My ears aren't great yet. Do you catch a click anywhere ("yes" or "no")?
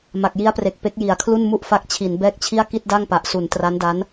no